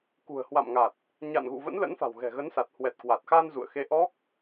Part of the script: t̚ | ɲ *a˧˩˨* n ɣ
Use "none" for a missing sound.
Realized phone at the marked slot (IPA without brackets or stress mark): a̰˧˨